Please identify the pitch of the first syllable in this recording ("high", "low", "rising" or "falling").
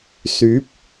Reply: rising